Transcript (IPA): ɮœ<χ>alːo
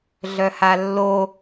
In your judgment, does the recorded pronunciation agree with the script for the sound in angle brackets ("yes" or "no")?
no